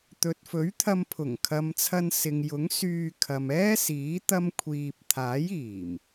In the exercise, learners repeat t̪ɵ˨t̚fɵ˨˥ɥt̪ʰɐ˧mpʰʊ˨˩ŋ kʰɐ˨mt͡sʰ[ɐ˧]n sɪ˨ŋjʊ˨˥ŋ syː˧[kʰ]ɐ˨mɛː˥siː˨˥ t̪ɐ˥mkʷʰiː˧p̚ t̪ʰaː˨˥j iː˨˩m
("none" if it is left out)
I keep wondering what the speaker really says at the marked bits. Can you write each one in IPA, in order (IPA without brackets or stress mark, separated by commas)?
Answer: ɐ˧, kʰ